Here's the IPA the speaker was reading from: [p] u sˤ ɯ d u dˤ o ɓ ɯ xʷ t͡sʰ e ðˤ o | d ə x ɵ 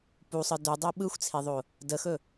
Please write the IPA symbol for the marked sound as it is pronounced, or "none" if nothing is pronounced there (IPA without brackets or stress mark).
p